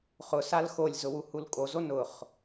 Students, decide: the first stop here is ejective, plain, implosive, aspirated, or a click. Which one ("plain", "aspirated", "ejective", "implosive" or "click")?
ejective